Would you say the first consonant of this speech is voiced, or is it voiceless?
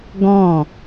voiced